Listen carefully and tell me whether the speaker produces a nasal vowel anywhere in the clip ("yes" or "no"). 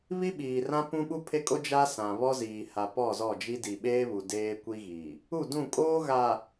yes